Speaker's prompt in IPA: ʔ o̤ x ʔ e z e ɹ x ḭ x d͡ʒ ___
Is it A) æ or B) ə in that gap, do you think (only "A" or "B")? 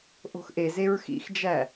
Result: A